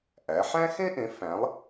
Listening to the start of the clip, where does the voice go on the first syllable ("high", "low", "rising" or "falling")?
rising